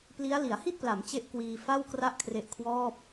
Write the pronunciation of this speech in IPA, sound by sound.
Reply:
p l i˦˥ a̯ l i˩˦ a̯ h i˥˩ t̚ p l a˩˦ m t͡ɕ e˥˩ ʔ k w iː˧ f a˥˩ w k r a˥˩ ʔ kʰ r e˦˥ ʔ kʰ w ɔː˥˩ p̚

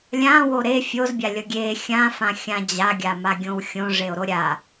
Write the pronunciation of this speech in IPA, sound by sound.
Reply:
lʲ ã w o ɾ e fʲ o z bʲ a lʲ ʌ ɡʲ e xʲ ã f ã xʲ ã d͡ʑ a ɡʲ a m a ɡʲ õ w xʲ õ ʐ e o̯ ɾ o ɾʲ a

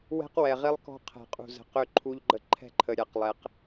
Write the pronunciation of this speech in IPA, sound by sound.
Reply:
w ɛ̤˦ q w ɛ˨ ʁ i˦ lˠ k ɔ̤˦ qʰ ɛ̤˨ qʼ ṳ˨ z ə̤˨ q ø˦ ǃʰ u˦ ʎ ɡ͡ǃ ə˦ ǃʰ ɛ̤˦ ǃʰ ə˨ ɾʲ a˨ q lˠ ɛ˨˦ q

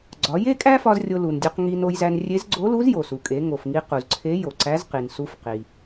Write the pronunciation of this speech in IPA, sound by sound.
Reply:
ɡ͡ǀ ɒ˩˧ j e˥ kʼ æ˥ f ɒ˧ z rʲ o˧ l u˩ n dʲ u˧ q ŋ i˧ n o˧ j z æ˧ n rʲ e˧˥ z ɡ͡ǀ o˧˥ l u˧˥ z j o˩ s u˩ kʼ e˩˧ ŋ o˩ f ŋ i˧ q u˩ z ǀʰ e˧˥ j o˩ ǀ æ˧˥ z q i˩ n s u˧ f q i˩

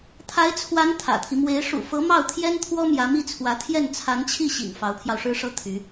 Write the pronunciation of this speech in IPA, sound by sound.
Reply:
t̪ʰ a˧˥ ɪ̯ t͡sʰ w a˧˥ n t̪ʰ ä̰˨˩ t̪ʰ i˦ m w e˧˥ ɪ̯ ʂ ṵ˨˩ f ɤ˧˥ m ɑ˥˩ ʊ̯ t̪ʰ j ɛ˥ n t̪ʰ w ɔ˥ m j ä˧˥ m i˥˩ t͡sʰ w ä˧˥ t̪ʰ j ɛ˥˩ n t͡sʰ a˧˥ n t͡ɕʰ i˥˩ ɕ ḭ˨˩ ŋ f ɑ˧˥ ʊ̯ pʰ j ɑ˧ ʊ̯ ʂ ɻ̩˥ ʂ ɤ˥ t̪ʰ y˧˥

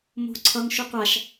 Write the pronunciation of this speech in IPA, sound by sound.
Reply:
m o̤ ǀʰ ʌ ŋ ʃ u qʷ a ʃ

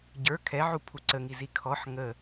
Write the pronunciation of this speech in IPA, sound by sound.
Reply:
ɟ ə˞ kʰ ɛ ʕ u pʰ u ǀ ə ŋ i z i kʰ ɔ ħ ŋ ə

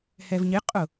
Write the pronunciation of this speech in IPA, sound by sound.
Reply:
h ɛ v ɲ ɪ qʼ ʊ

